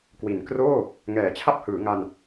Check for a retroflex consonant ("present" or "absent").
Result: absent